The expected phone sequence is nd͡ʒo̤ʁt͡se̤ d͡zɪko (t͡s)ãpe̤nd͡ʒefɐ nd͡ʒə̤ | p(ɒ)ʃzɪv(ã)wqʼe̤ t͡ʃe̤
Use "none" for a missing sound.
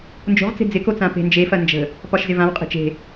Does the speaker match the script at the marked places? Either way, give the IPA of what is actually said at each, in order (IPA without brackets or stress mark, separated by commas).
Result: t͡s, ɒ, ã